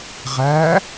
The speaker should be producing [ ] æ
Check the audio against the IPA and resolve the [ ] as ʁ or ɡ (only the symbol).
ʁ